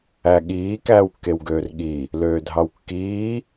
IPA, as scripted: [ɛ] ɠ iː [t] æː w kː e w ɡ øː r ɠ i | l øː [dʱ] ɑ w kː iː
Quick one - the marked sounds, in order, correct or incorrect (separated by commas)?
incorrect, incorrect, correct